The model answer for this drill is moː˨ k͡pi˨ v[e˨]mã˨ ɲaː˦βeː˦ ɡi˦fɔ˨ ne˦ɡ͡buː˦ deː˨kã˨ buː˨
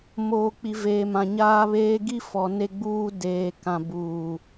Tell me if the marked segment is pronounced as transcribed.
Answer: no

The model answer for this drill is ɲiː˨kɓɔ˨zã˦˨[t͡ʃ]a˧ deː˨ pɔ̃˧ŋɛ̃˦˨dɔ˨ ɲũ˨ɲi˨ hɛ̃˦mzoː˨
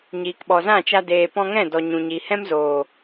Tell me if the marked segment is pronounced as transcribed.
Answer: yes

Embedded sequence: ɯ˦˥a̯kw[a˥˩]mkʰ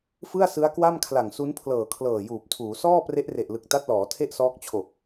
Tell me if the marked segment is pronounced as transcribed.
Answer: yes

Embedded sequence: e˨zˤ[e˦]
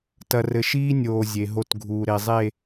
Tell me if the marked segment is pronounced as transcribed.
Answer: no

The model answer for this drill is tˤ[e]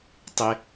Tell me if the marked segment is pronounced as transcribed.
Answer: yes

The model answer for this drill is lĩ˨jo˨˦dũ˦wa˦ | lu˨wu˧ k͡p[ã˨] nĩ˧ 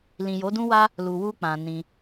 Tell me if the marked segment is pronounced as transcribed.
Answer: yes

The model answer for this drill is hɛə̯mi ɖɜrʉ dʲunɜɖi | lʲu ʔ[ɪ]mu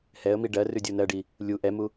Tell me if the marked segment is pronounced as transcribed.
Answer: no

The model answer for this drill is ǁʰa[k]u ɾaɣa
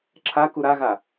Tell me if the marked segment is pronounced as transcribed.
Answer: yes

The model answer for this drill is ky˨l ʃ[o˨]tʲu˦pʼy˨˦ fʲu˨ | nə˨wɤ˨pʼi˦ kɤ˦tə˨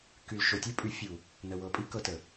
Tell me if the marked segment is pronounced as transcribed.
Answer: yes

